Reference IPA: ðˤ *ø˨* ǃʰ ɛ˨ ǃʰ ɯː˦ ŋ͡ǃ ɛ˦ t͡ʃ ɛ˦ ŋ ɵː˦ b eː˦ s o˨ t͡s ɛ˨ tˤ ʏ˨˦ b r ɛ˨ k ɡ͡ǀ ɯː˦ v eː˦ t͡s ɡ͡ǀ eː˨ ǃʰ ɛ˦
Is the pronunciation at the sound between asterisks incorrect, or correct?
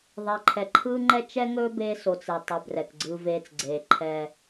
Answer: incorrect